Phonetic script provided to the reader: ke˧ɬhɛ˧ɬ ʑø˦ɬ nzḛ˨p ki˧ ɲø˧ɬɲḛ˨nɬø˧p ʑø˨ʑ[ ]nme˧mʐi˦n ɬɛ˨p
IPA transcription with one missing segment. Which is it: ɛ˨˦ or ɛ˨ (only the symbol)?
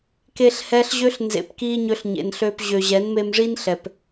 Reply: ɛ˨˦